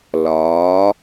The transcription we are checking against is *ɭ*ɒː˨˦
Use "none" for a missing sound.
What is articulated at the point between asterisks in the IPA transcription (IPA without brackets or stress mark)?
l